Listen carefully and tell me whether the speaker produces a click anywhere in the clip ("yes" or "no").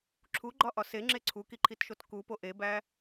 yes